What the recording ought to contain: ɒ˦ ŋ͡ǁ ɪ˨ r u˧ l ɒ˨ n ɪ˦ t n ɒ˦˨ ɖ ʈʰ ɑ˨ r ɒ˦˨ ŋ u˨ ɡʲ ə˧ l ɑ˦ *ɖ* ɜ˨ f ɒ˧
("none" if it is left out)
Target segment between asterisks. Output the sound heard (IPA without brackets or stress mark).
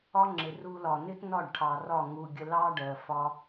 ɖ